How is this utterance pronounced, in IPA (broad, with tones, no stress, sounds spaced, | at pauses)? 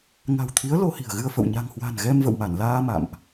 ŋ a̤˨˩ w t̪ʰ i˨˦ ə̯ l o˧ h i̤˨˩ ə̯ ɣ ɨ˧ ə̯ f ə̰˧˨ w ɲ a̤˨˩ ŋ h w a̤˨˩ n ɣ ɛ˧ m v ə̰˧˨ w m a˧˩ n l aː˧ m a̰˧˨ m ʔ